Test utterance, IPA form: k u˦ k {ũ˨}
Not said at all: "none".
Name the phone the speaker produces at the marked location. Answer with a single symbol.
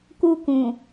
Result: ũ˨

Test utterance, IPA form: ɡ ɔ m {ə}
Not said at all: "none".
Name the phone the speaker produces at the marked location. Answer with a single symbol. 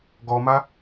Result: a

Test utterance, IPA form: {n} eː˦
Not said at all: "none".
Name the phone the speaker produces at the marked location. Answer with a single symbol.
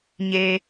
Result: ɲ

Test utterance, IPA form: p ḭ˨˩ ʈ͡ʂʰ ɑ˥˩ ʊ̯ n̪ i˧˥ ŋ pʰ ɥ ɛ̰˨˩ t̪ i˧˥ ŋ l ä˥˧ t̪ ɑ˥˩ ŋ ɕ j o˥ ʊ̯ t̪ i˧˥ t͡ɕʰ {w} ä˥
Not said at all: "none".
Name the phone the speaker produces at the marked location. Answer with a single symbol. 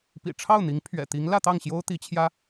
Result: j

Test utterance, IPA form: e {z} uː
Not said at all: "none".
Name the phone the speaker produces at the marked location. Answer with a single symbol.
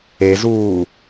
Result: z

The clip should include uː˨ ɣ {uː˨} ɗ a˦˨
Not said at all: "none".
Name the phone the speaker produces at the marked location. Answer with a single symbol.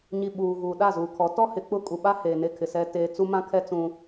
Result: uː˨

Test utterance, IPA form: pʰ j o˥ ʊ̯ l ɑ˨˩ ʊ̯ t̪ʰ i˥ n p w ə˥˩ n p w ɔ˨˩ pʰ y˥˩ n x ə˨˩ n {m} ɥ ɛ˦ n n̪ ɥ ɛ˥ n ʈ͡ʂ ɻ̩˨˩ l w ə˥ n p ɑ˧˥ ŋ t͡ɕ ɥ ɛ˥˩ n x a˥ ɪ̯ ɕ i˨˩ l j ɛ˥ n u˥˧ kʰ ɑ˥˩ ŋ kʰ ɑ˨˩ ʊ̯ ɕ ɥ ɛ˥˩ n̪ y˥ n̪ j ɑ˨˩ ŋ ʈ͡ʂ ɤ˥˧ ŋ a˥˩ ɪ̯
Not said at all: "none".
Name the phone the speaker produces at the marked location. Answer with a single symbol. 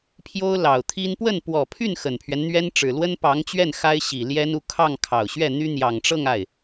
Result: pʰ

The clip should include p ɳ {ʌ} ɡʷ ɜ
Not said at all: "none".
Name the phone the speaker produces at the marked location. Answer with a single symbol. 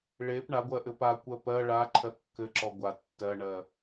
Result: a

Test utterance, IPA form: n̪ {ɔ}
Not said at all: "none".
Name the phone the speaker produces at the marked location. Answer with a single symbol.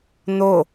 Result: o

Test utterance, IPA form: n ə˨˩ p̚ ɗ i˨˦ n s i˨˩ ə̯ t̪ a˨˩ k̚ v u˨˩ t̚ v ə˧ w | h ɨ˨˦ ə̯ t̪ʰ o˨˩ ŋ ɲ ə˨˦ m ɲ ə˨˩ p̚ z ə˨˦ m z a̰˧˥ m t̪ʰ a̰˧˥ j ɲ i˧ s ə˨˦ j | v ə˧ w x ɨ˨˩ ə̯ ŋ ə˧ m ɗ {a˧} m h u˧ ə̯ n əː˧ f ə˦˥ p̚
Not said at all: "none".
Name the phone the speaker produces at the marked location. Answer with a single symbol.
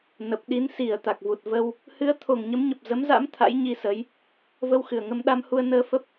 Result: a˧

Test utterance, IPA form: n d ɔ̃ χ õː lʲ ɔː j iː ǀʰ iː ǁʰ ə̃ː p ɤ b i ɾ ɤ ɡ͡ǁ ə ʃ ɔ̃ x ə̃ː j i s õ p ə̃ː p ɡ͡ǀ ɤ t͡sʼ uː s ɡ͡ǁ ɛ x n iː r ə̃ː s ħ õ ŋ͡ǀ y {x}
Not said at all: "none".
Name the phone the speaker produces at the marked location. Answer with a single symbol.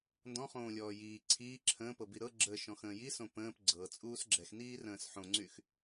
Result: x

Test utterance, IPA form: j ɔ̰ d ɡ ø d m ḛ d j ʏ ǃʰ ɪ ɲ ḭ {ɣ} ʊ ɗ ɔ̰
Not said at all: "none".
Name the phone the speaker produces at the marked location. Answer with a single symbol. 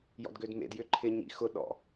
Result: x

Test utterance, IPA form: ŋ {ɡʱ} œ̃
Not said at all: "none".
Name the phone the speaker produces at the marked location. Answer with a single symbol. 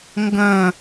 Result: ɡ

